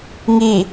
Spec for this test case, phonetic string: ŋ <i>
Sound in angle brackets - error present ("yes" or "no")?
no